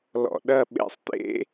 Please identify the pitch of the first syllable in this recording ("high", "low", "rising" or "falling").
low